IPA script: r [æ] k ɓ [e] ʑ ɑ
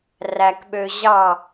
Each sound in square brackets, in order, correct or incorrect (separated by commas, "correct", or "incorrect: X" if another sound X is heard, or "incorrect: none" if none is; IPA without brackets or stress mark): correct, incorrect: ø